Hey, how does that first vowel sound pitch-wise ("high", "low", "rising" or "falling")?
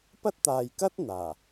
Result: high